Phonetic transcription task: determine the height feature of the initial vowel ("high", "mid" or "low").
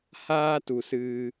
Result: low